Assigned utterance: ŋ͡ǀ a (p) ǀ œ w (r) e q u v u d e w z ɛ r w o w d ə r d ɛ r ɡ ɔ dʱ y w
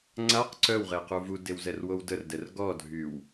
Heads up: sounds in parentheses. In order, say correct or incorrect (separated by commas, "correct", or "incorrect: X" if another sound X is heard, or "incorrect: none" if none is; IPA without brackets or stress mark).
incorrect: q, incorrect: ʁ